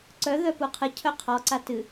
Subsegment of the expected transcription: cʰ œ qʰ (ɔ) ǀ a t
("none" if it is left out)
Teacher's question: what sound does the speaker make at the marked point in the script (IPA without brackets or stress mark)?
ɔ